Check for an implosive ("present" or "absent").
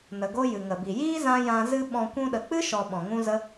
present